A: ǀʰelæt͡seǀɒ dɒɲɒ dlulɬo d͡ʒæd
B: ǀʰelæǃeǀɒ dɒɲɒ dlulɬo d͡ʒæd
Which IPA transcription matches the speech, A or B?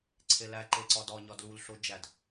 B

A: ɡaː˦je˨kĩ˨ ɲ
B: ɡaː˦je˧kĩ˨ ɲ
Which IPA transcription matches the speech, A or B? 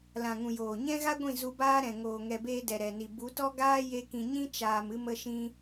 B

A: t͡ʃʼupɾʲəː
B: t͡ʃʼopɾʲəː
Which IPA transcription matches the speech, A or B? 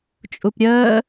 A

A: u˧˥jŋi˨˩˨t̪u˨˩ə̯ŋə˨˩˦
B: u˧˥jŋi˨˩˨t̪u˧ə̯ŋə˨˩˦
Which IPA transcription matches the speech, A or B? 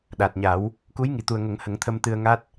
A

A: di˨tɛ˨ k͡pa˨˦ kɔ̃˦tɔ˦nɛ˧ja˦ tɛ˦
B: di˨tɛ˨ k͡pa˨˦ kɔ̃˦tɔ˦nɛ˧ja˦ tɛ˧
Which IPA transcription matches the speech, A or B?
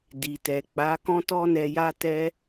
A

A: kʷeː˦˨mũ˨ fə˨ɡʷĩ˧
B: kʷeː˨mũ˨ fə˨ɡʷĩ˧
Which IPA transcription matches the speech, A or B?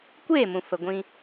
A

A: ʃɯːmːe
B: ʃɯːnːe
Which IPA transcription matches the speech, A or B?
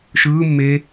A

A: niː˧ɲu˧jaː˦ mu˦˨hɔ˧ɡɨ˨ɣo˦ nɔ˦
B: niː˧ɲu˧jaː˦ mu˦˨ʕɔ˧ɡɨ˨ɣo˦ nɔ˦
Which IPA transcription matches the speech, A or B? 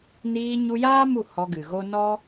A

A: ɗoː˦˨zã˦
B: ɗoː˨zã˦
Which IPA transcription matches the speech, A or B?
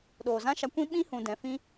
B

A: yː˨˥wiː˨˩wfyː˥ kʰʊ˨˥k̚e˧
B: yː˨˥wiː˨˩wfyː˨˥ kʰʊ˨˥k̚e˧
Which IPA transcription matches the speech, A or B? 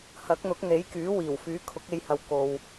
B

